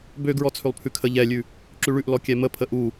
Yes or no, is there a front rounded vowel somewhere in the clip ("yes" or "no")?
yes